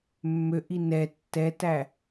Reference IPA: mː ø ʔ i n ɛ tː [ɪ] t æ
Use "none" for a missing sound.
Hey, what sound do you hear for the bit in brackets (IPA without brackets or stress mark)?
ɛ